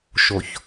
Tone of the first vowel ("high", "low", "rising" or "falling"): low